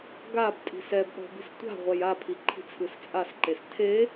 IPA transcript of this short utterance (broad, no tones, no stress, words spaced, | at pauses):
ɡabtʼi̤s ɛbɗɔ̤ bi̤stʷa̤ʁʷɛj apʰi ǃʰi̤t͡sʰɯst͡sʼasǃes tʰe